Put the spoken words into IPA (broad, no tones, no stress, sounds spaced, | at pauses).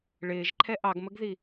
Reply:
ɭ ɪː ʒ ǃʰ ɛ ʔ ɑ ɡ m ə ɡ ð i